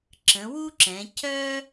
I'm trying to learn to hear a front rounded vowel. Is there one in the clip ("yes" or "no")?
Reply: yes